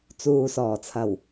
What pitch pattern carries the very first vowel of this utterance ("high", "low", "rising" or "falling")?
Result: low